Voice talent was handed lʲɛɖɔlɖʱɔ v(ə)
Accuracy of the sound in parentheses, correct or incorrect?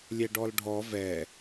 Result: incorrect